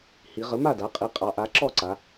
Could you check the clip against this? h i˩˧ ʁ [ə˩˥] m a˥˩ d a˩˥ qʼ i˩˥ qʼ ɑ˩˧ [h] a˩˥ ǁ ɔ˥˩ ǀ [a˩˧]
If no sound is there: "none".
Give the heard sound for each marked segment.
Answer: ə˩˥, ʔ, a˩˧

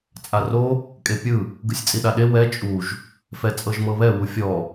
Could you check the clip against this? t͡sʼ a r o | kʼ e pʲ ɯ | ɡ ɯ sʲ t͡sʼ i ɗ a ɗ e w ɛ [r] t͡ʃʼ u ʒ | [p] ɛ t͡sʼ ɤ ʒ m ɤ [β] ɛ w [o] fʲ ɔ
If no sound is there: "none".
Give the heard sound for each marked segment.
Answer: none, f, β, u

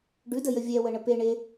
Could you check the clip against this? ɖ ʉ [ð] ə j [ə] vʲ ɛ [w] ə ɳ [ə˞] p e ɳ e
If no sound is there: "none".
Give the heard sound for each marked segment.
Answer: d, ə, w, ə

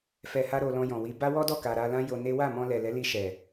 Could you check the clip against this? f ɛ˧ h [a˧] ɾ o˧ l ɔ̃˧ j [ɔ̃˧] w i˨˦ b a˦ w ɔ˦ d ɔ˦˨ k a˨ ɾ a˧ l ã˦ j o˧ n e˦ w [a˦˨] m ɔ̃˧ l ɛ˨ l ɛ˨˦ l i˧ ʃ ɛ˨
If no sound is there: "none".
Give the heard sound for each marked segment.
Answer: a˦, ɔ̃˨, a˦˨

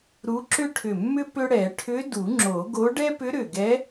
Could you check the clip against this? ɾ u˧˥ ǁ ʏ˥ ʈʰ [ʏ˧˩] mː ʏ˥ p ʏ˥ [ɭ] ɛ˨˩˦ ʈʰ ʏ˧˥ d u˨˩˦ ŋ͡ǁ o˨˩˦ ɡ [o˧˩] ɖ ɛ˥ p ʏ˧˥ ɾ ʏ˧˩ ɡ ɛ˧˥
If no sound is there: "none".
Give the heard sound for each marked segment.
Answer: ʏ˧˩, ɽ, o˧˥

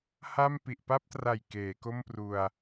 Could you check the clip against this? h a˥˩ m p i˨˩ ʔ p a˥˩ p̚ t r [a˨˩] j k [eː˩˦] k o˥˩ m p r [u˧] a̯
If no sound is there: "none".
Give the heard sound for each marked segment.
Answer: a˨˩, eː˩˦, u˧

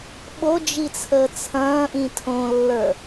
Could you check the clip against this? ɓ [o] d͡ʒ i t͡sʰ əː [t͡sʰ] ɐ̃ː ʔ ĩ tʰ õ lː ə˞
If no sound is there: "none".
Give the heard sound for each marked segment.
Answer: o, t͡sʰ

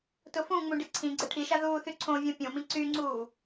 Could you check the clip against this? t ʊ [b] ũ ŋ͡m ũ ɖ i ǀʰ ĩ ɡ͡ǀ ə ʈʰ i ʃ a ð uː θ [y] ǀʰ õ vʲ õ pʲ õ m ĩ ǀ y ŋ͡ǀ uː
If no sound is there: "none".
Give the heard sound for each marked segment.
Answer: f, y

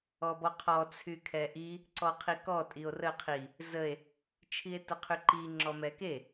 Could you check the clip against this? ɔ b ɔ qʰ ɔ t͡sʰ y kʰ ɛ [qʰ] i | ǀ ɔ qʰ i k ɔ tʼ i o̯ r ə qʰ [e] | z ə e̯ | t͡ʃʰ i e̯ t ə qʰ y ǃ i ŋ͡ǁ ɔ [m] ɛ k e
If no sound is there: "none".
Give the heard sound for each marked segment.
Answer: ʔ, i, m

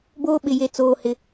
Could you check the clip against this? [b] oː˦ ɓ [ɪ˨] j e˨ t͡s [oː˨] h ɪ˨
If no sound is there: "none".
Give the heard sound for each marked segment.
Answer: b, ɪ˨, oː˨

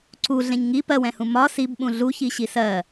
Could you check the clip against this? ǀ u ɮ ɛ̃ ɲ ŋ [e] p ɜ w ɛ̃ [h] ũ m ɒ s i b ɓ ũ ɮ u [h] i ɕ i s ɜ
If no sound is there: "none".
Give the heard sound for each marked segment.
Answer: i, h, ç

